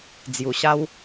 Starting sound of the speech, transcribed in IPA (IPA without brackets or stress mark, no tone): d͡z